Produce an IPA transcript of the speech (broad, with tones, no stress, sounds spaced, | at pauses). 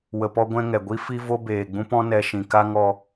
w ə˧ p ɔ˦ ɡʷ ɛ̃˦ ŋ ɛ˨ ɡʷ i˦ f i˦ v o˦ b eː˨ ɡ͡b ũ˦ p ɔ̃˦ n ɛ˧ ʃ ĩ˨ k a˦ ŋ ɔ˧